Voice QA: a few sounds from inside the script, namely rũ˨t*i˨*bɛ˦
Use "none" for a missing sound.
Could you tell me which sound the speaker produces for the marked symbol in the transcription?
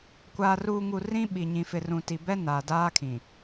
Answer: i˨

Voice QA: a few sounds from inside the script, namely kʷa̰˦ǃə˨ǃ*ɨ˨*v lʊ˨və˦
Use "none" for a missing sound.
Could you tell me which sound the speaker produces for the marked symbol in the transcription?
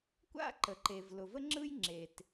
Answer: e˨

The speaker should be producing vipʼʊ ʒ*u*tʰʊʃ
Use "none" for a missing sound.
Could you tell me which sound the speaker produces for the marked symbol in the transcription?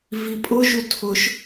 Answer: u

